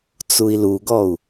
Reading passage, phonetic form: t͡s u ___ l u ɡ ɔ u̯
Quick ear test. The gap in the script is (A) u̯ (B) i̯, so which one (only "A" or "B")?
B